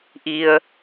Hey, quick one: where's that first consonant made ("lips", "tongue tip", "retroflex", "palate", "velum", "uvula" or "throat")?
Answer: throat